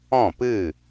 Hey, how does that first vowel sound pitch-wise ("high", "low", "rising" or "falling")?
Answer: falling